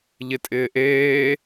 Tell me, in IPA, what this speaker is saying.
ʎɪtʼɪːʔeː

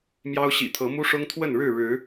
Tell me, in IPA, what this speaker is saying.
mjɑ˦ʊ̯ ɕḭ˨˩ t̪ʰɤ˨˦mu˦ʂʊ˦ŋ t̪ʰwə˥˨nɻɻ̩˥˨ɻɻ̩˨˦

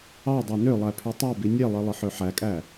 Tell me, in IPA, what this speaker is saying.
ɑ dˤɑnølˠæ pʰytˤɑbi nʲelˠi lˠɯħøħækʼæ

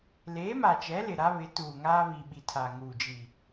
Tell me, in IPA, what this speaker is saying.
leː˨˦ma˨t͡ʃɛ˨˦ lɪ˨ɾa˦βɪ˨˦tuː˨ ŋaː˦βi˨ɓi˨ tʰa˨ŋuː˨d͡ʒi˨

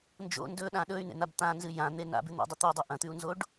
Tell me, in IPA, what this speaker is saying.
nd͡ʒo̰ ndɵɗã ɗɵy̯nḛn̪ab t̪ãnzɨ jãn̪e na̰bʉ n̪o̰dˤɵt̪ɵy̯dˤo ʔɐ̃t̪ʉu̯nzoɖ

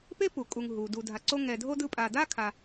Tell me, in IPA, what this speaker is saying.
pe˥pu˩ kʼu˨ŋ ɦu˩ du˨dʱa˨ǀo˦ ŋɛ˨dʱo˥dɯ˦ pʼa˨da˥ kʰa˨

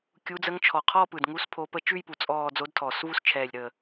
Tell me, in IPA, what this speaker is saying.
kʲu˧˥d͡zə˧˥ŋ t͡ʃʰɔ˨˩qʰɔ˥˧ pɯ˨˩dŋu˧˥s pʰo˧˥pə˥˧ t͡ʃʉ˥˧jpu˨˩ t͡sʼɔː˥˧ d͡zo˧˥dtʰɔː˨˩svu˥˧s t͡ʃʰɛː˨˩lʲɾəː˨˩

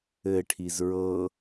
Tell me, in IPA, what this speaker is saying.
ɘʈʰiz ɹɤ

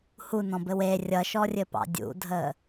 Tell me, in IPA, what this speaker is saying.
hunɔ̃bɘw e rʲʌʃɔrʲɘpɑ̰ dʲṵdʱə

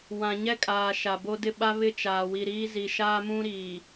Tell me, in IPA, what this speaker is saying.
wã˨ɲɛ˦kʼaː˨ ʃa˨bo˦dɪ˦ɓa˦ βɪ˦˨t͡ʃaː˨wi˨ɾiː˦ zi˨ʃaː˦mũ˦ɾiː˨

